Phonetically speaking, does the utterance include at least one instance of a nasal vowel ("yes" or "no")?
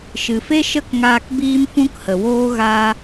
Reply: yes